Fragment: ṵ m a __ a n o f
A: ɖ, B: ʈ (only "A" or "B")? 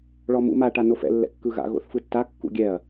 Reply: B